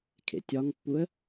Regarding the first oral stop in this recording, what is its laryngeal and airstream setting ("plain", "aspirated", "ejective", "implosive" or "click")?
aspirated